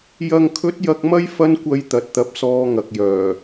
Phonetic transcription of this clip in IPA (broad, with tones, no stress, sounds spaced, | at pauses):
j ɐ˨ ŋ kʰ ɵ˨˥ t̚ j ɐ˧ k̚ m ɐ˥ j f ɐ˥ n kʷ ɐ˧ j t̪ ɐ˨ t̚ t̪ ɐ˨˥ p̚ s ɔː˧ ŋ ɐ˨ k̚ j œː˨˩